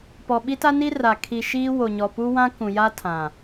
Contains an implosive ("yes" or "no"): yes